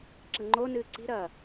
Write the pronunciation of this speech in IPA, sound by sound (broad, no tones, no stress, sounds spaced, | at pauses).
ǁ ɐ ŋ͡ǃ o n ɨː ǀ i̤ ɾ ɐː